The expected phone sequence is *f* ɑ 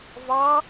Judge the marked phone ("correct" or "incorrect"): incorrect